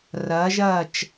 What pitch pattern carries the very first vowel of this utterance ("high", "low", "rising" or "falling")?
rising